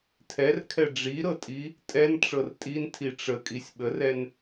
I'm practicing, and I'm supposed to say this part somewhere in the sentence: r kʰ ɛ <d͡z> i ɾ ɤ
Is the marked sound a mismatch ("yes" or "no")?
yes